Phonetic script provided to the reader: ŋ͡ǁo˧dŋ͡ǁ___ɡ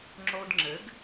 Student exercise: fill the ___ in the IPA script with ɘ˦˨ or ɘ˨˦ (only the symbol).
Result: ɘ˨˦